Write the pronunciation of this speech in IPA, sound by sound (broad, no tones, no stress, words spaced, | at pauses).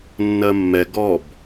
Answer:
nːɜmːɛ ɡɔb